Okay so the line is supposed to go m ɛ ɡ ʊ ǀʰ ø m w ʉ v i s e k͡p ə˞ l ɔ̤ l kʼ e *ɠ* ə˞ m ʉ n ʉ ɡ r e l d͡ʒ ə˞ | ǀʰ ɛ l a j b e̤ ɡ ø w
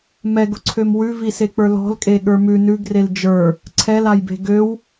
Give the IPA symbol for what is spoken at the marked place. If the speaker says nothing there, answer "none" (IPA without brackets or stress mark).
ɠ